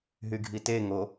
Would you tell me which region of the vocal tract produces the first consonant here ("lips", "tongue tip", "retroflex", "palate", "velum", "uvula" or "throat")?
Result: throat